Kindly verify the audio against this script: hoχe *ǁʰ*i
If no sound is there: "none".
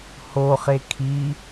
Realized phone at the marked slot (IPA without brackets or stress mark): kʰ